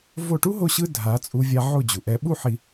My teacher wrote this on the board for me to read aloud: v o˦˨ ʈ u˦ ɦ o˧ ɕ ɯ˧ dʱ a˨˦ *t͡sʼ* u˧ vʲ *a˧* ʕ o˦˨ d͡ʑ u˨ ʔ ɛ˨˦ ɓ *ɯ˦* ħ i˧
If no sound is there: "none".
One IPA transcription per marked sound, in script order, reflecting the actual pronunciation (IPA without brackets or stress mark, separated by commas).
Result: t͡sʼ, a˧, u˦